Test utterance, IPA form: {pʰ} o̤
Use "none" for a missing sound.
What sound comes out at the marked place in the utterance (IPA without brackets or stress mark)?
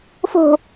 f